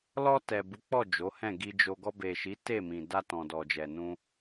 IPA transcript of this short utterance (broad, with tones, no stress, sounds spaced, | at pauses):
l ɔ˧ t ɛ˨ b u˨˦ k͡p ɔ˦˨ d͡ʒ o˨˦ h ɛ̃˦˨ ɡ i˧ d͡ʒ o˧ ɡ ɔ˧ b e˨ ʃ i˨˦ t e˦˨ m ĩ˨ d a˧ t ɔ̃˨ d ɔ˨ d͡ʒ ɛ˨ n ũ˧